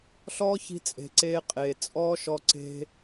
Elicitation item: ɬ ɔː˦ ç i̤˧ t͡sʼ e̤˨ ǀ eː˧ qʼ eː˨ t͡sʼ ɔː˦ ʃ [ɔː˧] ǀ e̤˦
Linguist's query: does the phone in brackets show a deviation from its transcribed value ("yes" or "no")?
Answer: yes